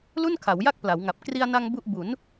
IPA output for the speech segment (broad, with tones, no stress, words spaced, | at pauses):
lu˥˩nkʰa˩˦wja˥˩k̚ pla˩˦wŋa˨˩p̚ kri˧a̯na˧ŋ bu˥˩ʔ bu˩˦n